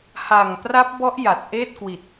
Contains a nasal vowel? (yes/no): no